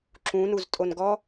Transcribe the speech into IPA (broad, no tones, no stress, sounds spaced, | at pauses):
ǁ ũ n u z tʼ o n ɡ ɔ